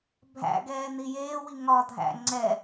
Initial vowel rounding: unrounded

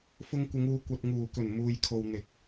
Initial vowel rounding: rounded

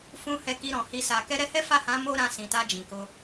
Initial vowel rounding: rounded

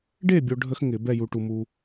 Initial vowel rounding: unrounded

